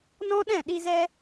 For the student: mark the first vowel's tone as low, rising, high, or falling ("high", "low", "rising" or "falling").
high